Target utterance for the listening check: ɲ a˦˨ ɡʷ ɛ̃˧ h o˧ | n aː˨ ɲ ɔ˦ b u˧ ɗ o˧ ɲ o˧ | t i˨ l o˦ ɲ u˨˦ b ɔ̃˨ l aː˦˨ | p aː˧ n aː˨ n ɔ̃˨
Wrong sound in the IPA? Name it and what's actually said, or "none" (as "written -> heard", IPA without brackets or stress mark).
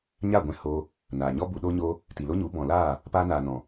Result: none